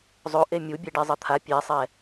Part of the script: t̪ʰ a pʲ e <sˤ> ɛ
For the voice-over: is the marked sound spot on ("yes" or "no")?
yes